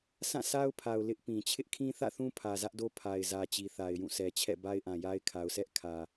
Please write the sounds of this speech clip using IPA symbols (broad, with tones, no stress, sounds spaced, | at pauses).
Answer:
s ã˦˨ s a˦ ʊ̯ pʰ a˨ ʊ̯ l ɪ˦ ʔ p ĩ˨ t͡ɕʰ ɪ˦ ʔ kʰ ĩ˦ θ ä̰˦˨ θ ũ˦ pʰ ä˨ z ä˦ ʔ d o˦ pʰ a˨ ɪ̯ z ä˨ t͡ɕ i˨ θ a˨ ɪ̯ j ũ˦˨ s ɛ˨ t͡ɕʰ ɛ̰˦˨ b a˦ ɪ̯ ʔ ã˨ j a˦ ɪ̯ kʰ a˨ ʊ̯ s ɛ˦ ʔ kʰ ä˨